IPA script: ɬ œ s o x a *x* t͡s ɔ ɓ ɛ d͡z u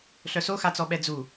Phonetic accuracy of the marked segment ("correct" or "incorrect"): incorrect